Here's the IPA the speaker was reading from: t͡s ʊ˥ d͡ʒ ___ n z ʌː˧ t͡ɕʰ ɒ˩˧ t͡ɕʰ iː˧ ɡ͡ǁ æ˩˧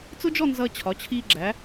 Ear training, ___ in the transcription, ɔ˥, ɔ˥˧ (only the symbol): ɔ˥˧